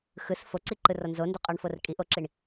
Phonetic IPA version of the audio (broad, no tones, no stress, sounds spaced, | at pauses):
x ɯ s f o ǀ i ǃ ɯ r ɔ n z o n d o qʼ ɔ ɳ f o r kʼ i ʔ o ǁ i ɳ